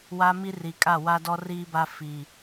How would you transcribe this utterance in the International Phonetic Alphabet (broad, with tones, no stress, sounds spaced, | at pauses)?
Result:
w a˦ m i˦ r i˨ kʼ a˦˨ w a˦ d ɔ˦ r iː˦ b a˦ f i˨